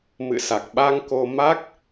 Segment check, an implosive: present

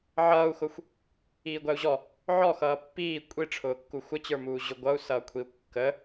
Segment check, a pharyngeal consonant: present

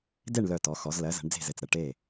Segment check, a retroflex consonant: present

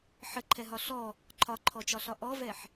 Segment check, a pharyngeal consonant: present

